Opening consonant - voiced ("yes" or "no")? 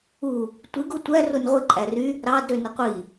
no